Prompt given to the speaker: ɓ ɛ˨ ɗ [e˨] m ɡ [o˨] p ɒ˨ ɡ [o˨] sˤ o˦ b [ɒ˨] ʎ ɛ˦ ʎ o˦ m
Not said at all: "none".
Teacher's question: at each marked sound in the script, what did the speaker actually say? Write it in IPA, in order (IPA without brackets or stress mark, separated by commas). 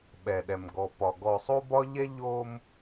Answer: ɛ˨, ɔ˨, ɔ˨, ɒ˦